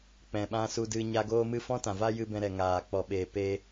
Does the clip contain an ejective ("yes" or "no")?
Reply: no